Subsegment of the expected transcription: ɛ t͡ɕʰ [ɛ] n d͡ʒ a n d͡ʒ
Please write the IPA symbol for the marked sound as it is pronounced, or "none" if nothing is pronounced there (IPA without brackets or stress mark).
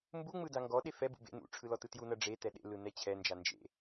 ɛ